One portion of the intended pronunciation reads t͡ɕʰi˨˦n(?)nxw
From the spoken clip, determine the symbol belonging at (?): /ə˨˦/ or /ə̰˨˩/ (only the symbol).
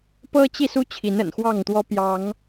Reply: ə̰˨˩